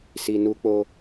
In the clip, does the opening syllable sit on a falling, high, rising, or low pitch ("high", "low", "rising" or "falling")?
low